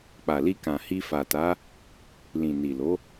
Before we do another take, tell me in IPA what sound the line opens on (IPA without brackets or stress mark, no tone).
k͡p